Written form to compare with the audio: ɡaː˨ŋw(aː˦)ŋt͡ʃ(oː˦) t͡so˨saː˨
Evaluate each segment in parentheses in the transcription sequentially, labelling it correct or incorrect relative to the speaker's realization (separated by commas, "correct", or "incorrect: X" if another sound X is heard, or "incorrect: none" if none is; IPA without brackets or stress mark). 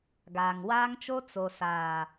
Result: correct, incorrect: o˦